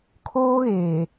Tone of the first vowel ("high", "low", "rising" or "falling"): high